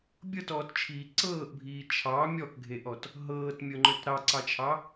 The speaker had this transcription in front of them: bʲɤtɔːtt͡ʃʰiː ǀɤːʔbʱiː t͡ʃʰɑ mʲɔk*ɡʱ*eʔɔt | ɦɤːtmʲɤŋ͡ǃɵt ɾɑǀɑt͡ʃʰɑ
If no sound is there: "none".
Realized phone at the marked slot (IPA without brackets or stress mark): ɡʱ